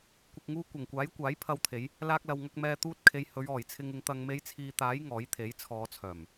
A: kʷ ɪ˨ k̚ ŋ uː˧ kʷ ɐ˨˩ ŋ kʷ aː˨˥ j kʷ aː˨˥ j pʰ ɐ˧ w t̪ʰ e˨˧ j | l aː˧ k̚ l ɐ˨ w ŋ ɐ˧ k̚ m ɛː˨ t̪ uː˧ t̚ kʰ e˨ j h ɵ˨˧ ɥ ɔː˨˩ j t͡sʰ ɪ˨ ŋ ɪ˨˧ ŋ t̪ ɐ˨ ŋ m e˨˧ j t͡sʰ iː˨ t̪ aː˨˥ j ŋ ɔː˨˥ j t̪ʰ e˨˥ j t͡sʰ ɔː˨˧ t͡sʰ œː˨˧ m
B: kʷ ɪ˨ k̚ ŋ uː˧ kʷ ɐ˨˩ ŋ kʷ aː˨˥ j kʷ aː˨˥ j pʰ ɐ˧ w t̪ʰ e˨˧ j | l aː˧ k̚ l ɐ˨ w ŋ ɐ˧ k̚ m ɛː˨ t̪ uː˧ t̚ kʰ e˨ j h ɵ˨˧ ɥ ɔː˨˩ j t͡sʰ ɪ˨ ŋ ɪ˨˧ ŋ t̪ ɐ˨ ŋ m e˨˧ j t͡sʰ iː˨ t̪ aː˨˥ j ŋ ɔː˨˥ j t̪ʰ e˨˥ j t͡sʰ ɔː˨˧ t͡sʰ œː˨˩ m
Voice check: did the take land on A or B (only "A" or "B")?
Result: B